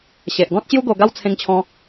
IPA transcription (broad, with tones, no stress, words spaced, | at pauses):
ɕe˨ʔɡɔ̃˦t̚ɕju˦ɡo˧ ɡa˦w t͡sʰẽ˧ŋt͡ɕʰɔ̃˧